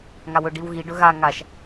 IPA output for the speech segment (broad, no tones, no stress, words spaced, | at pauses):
ŋawɵ ɖiwɣi ɖɵɣa ŋaʃ